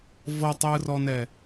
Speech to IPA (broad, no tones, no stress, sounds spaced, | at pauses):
v ɤ tˤ j ɯ r ɔ n ɛ